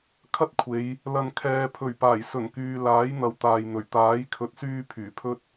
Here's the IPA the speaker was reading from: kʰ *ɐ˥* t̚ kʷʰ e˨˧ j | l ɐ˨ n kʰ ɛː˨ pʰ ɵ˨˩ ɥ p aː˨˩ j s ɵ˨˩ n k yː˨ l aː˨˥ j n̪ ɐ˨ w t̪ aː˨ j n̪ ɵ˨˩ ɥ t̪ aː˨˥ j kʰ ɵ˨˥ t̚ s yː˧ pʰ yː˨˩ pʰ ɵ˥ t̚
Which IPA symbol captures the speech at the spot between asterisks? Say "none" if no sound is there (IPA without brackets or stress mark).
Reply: ɐ˥